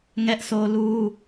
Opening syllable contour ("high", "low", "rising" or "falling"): high